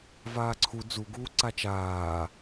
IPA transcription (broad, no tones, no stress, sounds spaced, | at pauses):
v aː ǀʰ u d͡z u ɡ uː ǀ a t͡ʃ aː